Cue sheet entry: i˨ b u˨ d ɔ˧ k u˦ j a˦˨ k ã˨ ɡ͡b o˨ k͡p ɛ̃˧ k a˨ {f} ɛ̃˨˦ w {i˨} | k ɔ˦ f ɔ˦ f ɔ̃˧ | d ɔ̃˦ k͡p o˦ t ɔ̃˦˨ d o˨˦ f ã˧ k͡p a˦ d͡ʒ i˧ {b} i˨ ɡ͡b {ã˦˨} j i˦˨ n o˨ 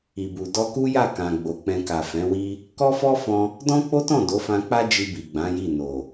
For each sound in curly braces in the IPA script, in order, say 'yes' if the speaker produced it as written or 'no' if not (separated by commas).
yes, no, yes, no